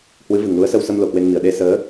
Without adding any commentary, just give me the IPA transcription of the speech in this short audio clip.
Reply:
h w ɨ˨˦ v ɨ˨˩ ŋ l u˨˦ ə̯ s ə˧ w s ə˧ m l o˨˩ k w e˧ n m i˧˩ ə̯ ɗ e˧ s əː˨˦

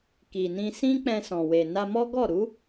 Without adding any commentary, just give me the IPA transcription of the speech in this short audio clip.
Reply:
k i˨ n ĩ˧ s ĩ˦ k͡p ɛ̃˧ s ɔ̃˨ w e˨ n a˧ m ɔ˦ ɡ ɔ˦˨ ɾ u˨˦

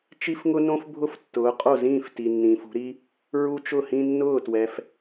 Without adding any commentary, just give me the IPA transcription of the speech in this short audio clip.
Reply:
t͡ʃ i˦ f ŋ ʊ˦ n õ˦ f bʱ ʊ˦ f tː ʊː˩˧ qʼ o˥˩ z ĩː˥˩ f t i˩ nː ĩː˩ f ṳ˩˧ ɾ i˦ | ɹ u˦ t͡ʃ ʊ˥˩ h ĩ˦ nː ʊː˥˩ t w ɛ˩ f

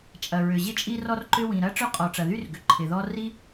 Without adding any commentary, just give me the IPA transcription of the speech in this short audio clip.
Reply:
t͡ʃʼ ɐ˩ ɹ ʏ˩ ʑ ɪ˥ t͡ʃʼ i˥ r ɔ˥ r ǃ ʏ˥ w ĩ˩ ɾ ɐ˥ ʈ͡ʂ œ˥ qʼ ɔ˩ ʈ͡ʂ ɐ˩ ð y˥ r ɡ ʏ˩ ǃʰ ɪ˩ ð ɔ˥ r i˥

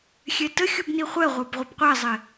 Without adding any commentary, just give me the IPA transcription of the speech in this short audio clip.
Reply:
xʲ ɛ t ə xʲ u b n i χʷ ɛ ʁʷ ə˞ b ʁʷ ə b qʷ ɛ zˤ ɪ

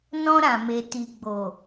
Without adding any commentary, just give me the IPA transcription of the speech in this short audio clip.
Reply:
n ɔ̃˧ ɾ ã˨ m e˨ t i˨ ɡ͡b o˨

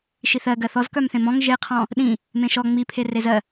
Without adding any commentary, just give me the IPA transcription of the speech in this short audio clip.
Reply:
ʃ i θ ɜ ɡ ɜ θ ɔ z k œ m θ ẽ m ɔ̃ ŋ ʒ e qʰ ɔ̃ | ɗ ĩ | m ẽ ʃ ɔ ŋ͡m i pʰ e r e z ɜ

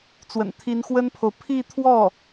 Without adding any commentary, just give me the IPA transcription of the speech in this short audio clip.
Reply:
t͡s w ə̰˨˩ n t̪ʰ i˧˥ n x w ə˥ n pʰ o˨ ʊ̯ pʰ i˥˧ t̪ʰ w ɔ˥˩

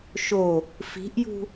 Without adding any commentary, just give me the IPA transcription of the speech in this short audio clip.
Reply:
ʃ o | f i̤ ʔ j ṳ

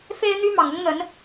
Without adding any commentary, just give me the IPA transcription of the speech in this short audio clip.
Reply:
f e˥ ɪ̯ n̪ y˥ m ɑ˨˩ ŋ ʊ˥ ŋ n̪ ə˧˥ n

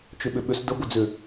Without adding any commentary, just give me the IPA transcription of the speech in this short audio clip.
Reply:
t͡ʃ ʏ ɓ ʏ ɓ ʏ s d ə ɡʷ ə d͡z ʏ

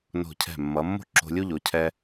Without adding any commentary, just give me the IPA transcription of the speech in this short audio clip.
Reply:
n o̤˧˩ cʰ ɛ̤˧˩ mː ʌ˩˧ mː o̤˥ ǁ o̤˧ lʲ u˥ ʎ o˩˧ cʰ ɛ˧

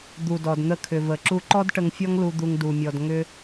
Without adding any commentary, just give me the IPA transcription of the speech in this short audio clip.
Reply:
d̪ u˨ d ɔ˨ d n̪ ə˧ kʰ ʏ˨ v ə˨ ǁ u˧ ǃ ɔ˦ d ʈ ə˧ ŋ fʲ ɔ˦ ŋ l u˧ d̪ u˧ ŋ d u˨ mʲ ɔ˨ d ŋ ʏ˧

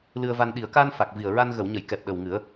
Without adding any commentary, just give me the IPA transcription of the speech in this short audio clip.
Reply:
l ɨ˧ ə̯ v a˧ n ɗ i˨˩˨ ə̯ k aː˧ n f a˨˩ k̚ v i˨˩ ə̯ ɹ a˧ n ɣ ə˨˩˨ w ɲ ə˨˩˨ j k ɛ˨˩ p̚ ɗ ə˨˩ w ŋ ɨ˨˩˦ ə̯

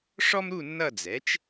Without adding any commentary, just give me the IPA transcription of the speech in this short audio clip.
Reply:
ʂ ɔ˥ m ɾ u˥˧ nː ʌ˥˧ d͡z ɛ˩˥ t͡ʃ

